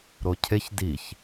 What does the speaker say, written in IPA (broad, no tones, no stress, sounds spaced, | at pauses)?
ɾ o cʰ e ç d i ç